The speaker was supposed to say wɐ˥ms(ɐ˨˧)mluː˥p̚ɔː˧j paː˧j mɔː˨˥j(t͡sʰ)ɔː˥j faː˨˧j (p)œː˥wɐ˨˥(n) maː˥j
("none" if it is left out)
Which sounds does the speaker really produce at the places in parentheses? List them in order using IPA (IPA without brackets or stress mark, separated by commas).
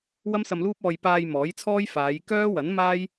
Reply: ɐ˧, t͡sʰ, k, n